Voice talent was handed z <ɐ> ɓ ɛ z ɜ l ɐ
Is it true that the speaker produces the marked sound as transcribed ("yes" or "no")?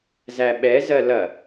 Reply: no